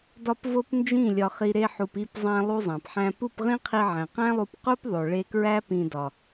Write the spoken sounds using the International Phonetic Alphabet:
d ɒ˦ p v o˦ p n d͡ʒ ĩ˦˨ lʲ ɒ˧ χ i˧ ɾ e˧ ħ u˨ p i˦˨ p zˤ æ̃˧ lˠ u˦ zˤ æ̃˨ p ħ æ̃˦ p u˦˨ p ʁ ĩ˦ qʰ i˧ ʕ æ̃˨ q æ̃˦ lˠ u˧ p q u˦ p ðˤ o˨ ɭ e˧ k ɹ æ˦ p ĩ˧ d ɒ˨

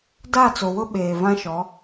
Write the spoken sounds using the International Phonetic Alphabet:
d a˦˨ t͡s o˨ w ʊ˦ ɓ eː˨ v ã˦ ʃ ɔ˨˦

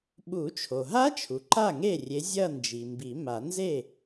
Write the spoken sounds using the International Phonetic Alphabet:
ɓ u˨˩˦ t͡ʃʰ o˩ ɦ a˦˥ t͡ʃʰ u˩ ǃ a˥˩ ŋ e˥˩ rʲ e˨˦ zʲ ɐ˥˧ n d͡ʒ i˩ m b i˨˩˦ m a˨˩˦ n z e˥˩

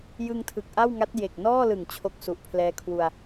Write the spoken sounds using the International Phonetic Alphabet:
j ɯ˧ ŋ tʰ ɯ˨˩ k̚ ʔ a˥˩ w ŋ a˦˥ t̚ j e˨˩ k̚ n ɔː˥˩ l ɯ˨˩ ŋ t͡ɕʰ o˦˥ k̚ s u˨˩ ʔ pʰ l ɛː˦˥ kʰ w u˧ a̯

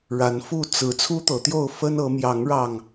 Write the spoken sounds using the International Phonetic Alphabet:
ɻ a˨˦ n f u˥˨ t͡s ɹ̩˨˦ t͡sʰ u˦ t̪ ɤ˨˦ t̪ j o˥˨ ʊ̯ f ə˦ n ɤ˨˦ m j ɑ˨˦ ŋ ɻ ɑ˨˩ ŋ

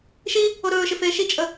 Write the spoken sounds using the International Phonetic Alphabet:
ʃ i | o ɾ ɵː ʃ ɪ f eː ʃ i t͡ʃʼ ə

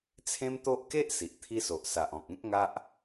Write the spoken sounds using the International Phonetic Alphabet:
t͡sʰ ẽ˦ m t̪ o˦ ʔ k e˦ ʔ s i˨ ʔ t̪ʰ i˦ s o˨ ʔ s a˨ ʔ ɔ̃˨ k̚ ẽ˦ k̚ ŋ a˦ ʔ

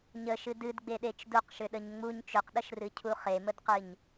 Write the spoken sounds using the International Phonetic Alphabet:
ɲ ə ʃ ɨ d ɨ d ɡ͡b e ɗ e t͡ʃ d u q ʃ ʏ ɗ ə ɲ ŋ͡m u ɲ t͡ʃ ʏ q ɗ ə ʃ r ɨ cʰ u χ e m ə d q ɨ ɲ

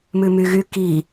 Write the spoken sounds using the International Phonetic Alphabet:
m ʉ m y ɣ y k i

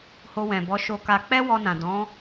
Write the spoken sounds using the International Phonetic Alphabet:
h o˧ w ɛ̃˨ b ɔ˨˦ ʃ o˧ k a˧ k͡p ɛ˦ w ɔ˧ n ã˨ d ɔ̃˨˦

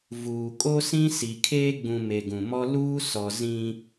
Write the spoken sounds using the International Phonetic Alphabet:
v uː˨ kʼ o˦ s ĩ˦ s i˨ kʰ eː˦ ɡ͡b ũ˨ m e˨ ɡ ũ˨ m ɔ˦ l uː˦ s ɔ˨ z ĩ˦

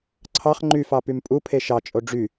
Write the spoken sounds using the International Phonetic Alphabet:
ǀʰ ɑ χ ŋ͡ǃ y f ɑ p y m pʼ u pʰ e ʃ ɑ t͡ʃʼ o ɖ͡ʐ y

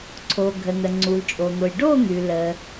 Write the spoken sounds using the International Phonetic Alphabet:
ǀʰ o˩ ɡʱ ə˩ n̪ ə˩ ŋ͡ǀ u˩ l t͡ʃʼ o˩ n̪ o˩ j ɖ o˥˨ n̪ ʉ˩ l ə˩

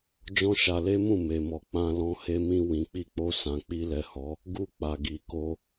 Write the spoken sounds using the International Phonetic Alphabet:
d͡ʒ ɔ̃˦ ʃ a˧ l e˦ m ũ˦˨ m e˨ m ɔ˨ k͡p ã˧ l ɔ̃˧ h e˧ m ĩ˧ w ĩ˨ k͡p i˧ k͡p o˧ s ã˨ k͡p i˧ l ɛ˨ h ɔ˨˦ | ɡ u˦ k͡p a˧ ɡ i˧ k o˦

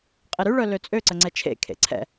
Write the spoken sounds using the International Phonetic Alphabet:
qʼ e ɾ y ɭ œ l ø t͡sʼ ø ǀ ə ŋ͡ǀ ɛ t͡ʃʰ ḛ kʰ ḛ ǀʰ ɛ̰

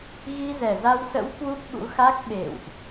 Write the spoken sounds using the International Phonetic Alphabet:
ɣ i˧ z ɛ˨˩ z a˧ w s ə̰˧˥ w k w u˦˥ p̚ ɓ ṵ˧˥ x a˦˥ k̚ ɓ ḛ˧˨ w ʔ

